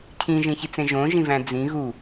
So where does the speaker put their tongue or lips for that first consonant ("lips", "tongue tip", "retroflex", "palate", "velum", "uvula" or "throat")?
palate